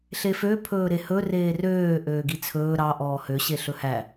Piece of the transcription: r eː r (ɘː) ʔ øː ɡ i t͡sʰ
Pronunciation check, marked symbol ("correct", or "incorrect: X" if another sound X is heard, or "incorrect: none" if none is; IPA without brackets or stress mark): incorrect: øː